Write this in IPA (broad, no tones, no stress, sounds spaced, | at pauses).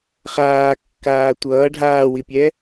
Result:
χ aː kː aː tʷ ʌː ɖʱ aː w i pʲ ɛ